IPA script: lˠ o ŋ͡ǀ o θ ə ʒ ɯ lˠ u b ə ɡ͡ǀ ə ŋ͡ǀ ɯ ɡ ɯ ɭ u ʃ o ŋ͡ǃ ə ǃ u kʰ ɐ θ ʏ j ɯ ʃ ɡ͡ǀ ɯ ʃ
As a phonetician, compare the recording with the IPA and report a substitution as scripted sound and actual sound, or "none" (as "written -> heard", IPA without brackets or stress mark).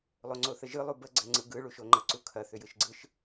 ǃ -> ǀ